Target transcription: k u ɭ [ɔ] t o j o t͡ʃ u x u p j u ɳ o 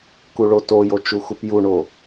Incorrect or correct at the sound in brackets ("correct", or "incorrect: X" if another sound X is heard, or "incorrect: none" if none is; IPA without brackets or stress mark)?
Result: incorrect: o